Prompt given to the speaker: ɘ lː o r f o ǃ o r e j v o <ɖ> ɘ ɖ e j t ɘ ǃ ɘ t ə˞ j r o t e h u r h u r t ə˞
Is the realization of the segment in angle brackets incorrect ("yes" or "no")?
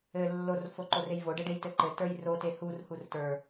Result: no